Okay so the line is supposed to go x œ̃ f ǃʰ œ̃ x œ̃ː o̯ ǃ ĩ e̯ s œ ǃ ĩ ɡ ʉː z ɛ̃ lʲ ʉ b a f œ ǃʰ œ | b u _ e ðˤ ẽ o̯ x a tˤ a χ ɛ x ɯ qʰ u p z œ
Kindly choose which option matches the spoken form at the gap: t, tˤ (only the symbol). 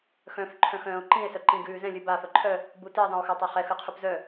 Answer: t